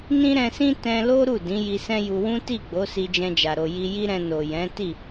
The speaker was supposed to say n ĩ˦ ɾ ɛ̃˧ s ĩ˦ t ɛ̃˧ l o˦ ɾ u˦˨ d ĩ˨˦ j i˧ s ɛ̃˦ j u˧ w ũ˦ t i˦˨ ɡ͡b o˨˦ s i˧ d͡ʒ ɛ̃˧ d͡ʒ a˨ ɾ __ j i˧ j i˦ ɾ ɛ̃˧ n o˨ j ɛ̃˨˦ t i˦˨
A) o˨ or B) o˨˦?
A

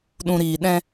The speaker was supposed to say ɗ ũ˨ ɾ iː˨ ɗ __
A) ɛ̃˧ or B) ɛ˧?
A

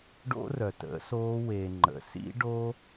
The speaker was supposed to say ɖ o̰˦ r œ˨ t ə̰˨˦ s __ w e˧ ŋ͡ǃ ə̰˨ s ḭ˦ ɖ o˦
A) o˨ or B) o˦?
B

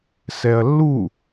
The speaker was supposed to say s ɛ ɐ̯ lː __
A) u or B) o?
A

